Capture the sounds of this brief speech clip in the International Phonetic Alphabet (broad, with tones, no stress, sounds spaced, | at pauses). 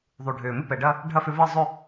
ðˤ u˩ ɖʱ ʏː˩ m ɪ˥˧ p ɛ˩ ɖ ɐ˥˧ | ɖʱ ɐ˥˧ f ʏ˧ v e˥˧ zˤ ʏ˥˧